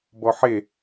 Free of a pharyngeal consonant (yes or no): no